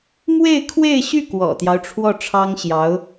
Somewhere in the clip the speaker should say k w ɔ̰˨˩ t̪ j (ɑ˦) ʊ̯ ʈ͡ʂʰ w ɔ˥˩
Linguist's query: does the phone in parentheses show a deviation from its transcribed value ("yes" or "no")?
no